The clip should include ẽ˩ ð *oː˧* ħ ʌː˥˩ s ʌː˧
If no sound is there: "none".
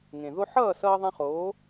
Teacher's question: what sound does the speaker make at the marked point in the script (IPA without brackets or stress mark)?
o˧